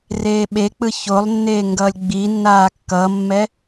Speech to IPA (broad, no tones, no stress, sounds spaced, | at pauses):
r eː ɓ e k͡p ɯ ç o lˠ nː eː ŋ ɡ ʌː lʲ ɡ͡b iː nː aː kː ʌ mː ɛ